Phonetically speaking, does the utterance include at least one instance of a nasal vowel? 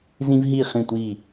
yes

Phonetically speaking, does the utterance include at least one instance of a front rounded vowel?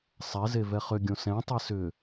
yes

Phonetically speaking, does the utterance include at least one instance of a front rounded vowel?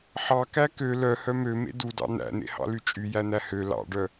yes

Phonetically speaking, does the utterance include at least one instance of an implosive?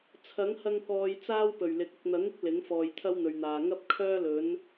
no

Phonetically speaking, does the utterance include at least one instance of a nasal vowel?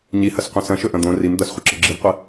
yes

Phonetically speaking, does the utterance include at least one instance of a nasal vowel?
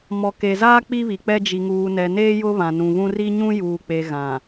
yes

